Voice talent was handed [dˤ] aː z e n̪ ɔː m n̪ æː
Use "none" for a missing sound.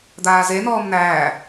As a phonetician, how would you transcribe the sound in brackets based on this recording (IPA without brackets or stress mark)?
d̪